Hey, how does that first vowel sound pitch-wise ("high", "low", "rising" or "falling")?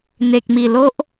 low